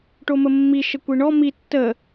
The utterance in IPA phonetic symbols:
ʈ o m ə mː i ʃ ə kʷ i ɳ ɔ m i tː ə

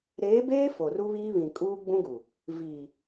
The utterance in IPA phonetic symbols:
ɾ eː˨˦ b eː˦ f o˨ r u˦ β iː˦ β ĩ˨ kʼ uː˦ ɡ͡b ũ˦ ɡ u˨ | v iː˨

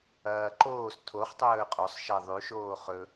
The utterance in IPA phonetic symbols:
ɐː ǃ oː s tʰ o χ tˤ ɵː qʼ o sˤ ʃ ɐ ðˤ ʉ ʃ oː χ ɵ

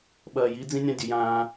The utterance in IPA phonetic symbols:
ɓ ɐː˨ j i˨˦ d͡z ĩ˦ nʲ ã˦ dʲ ʉ˨ j ãː˦

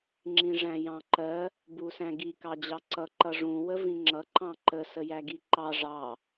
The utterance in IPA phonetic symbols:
ŋ͡ǁ ĩ ʐ æ̃ j ɑ̃ ǃ ɜ | b u s æ̃ ɡ i k ɑ d͡ʑ ɑ ǀ ʌ ǃ ʌ ʐ ũ w ə v ĩ ŋ͡ǁ ʌ ǃ ɑ̃ ǃ ə s ə j æ ɡ i ǃ ɑ ʐ ɑ

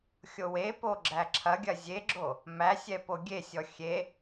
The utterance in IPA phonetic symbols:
xʲ o w e p o ɡ͡ǁ æ ǁʰ ɐ ɡʲ ɐ zʲ e ɡ͡ǁ o | m æ sʲ ɛ p o ɡʲ e sʲ ɔ xʲ e

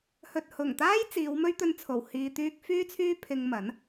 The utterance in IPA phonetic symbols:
h ɵ˨ t̚ h ʊ˨˩ ŋ t̪ aː˥ j t͡s iː˨˧ w m ɵ˥ ɥ t̪ ɵ˧ n t͡sʰ o˨˩ w h iː˨ t̪ yː˧ k̚ f yː˥ t͡sʰ yː˥ pʰ ɪ˧ ŋ m ɐ˨˥ n

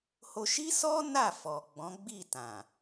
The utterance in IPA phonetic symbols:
h o˧ ʃ i˦ s ɔ˦ n a˦˨ f ɔ˨ ɡ͡b ɔ̃˨˦ ɡ͡b i˦˨ t ã˨

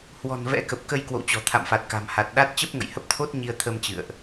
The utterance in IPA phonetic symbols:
h w ɔ̤˨˩ n v ɛ̰˧˥ k ə˨˩ p̚ k ə˧ j k w o̰˧˨ w t͡ɕ ɔ̤˨˩ t̪ʰ a̰˧˨ m f a˨˩ t̚ k a̤˨˩ m h a˨˩ t̚ ɗ a˦˥ t̚ t͡ɕ ə˦˥ p̚ ŋ ə̰˧˨ j h ə˦˥ p̚ t̪ʰ o˦˥ t̚ ɲ i˧ ə̯ t̪ʰ ə˧ m t͡ɕ ɨ̰˧˨ ə̯ ʔ

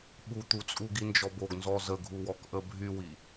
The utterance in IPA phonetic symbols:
ɓ u t̪ u t͡sʼ u ɡ i n d͡ʒ ɔ b o ɡ n z ɔ z ə ɡʱ u w ɔ k ʔ ə bʱ y w i

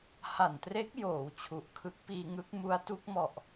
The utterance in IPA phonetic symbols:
h a˨˩ n t r e˦˥ k̚ j oː˩˦ w t͡ɕʰ u˨˩ ʔ kʰ ɯ˦˥ k̚ p iː˧ ŋ ɯ˦˥ k̚ m u˦˥ a̯ t u˦˥ k̚ m ɔ˨˩ ʔ

